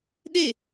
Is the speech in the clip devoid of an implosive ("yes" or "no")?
no